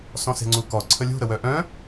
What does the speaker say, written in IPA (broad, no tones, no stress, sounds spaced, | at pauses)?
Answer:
s ɔ̃ s e̤ ŋ͡ǀ u k ɔ ǀʰ ə lʲ ṳ ɾ ə w œ ʔ œ̃